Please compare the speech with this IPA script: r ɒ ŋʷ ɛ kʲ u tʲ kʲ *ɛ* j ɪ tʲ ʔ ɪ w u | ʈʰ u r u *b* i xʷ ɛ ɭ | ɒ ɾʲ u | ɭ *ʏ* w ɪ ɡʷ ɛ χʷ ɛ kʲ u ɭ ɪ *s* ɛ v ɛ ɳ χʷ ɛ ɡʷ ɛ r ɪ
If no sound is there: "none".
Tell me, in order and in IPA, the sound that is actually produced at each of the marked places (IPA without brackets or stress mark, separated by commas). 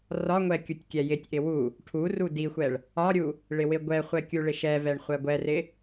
ɛ, d, ɪ, ʃ